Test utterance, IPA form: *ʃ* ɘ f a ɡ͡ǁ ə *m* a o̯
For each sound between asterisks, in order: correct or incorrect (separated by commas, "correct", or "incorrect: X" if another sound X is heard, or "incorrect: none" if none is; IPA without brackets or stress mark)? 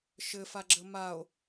correct, correct